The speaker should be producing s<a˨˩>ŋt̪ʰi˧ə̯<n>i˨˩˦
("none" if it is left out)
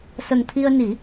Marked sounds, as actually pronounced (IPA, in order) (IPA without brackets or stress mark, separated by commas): ə˨˩, n